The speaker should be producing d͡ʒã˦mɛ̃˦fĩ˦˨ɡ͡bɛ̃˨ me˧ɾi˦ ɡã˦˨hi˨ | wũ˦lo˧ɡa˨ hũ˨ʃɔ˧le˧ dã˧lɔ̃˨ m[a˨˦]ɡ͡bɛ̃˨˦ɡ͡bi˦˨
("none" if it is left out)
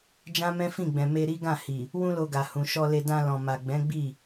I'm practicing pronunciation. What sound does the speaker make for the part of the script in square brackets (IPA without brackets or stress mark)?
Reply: a˨